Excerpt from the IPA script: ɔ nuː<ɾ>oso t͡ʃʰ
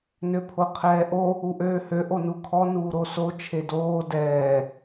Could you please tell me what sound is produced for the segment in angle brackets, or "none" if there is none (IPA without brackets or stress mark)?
ɾ